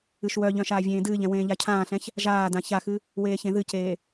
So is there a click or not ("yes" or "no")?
no